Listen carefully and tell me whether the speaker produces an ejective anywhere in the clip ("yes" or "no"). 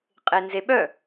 yes